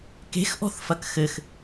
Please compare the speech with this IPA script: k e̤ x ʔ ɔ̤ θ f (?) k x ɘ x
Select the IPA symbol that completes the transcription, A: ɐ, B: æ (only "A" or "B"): A